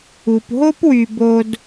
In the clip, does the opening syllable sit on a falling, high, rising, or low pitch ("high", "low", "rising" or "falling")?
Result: low